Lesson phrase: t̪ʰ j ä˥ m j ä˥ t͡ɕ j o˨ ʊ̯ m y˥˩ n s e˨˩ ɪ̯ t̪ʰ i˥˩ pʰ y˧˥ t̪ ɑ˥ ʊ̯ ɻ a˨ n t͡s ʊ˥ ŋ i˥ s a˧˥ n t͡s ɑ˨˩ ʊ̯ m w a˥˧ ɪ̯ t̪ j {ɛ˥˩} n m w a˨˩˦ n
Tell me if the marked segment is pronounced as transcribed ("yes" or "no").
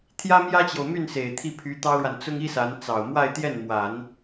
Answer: yes